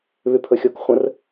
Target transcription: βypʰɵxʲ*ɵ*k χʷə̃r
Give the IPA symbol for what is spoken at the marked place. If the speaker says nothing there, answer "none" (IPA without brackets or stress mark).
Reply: o